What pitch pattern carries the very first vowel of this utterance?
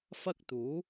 high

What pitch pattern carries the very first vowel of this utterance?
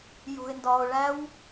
low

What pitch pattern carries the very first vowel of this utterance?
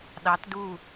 rising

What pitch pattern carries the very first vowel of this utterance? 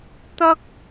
high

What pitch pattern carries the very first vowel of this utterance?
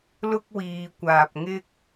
high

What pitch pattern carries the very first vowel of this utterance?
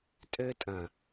high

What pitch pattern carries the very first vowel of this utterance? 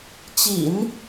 low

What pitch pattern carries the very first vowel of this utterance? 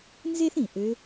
high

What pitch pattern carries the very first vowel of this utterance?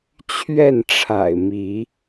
falling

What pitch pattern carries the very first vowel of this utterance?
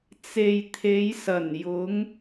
low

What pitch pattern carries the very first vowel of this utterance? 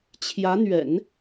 rising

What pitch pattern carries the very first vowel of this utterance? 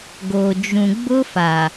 low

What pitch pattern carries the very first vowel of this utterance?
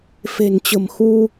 low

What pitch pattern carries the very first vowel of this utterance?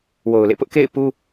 low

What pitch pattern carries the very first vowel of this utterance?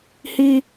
high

